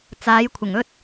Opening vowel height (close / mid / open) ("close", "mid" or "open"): open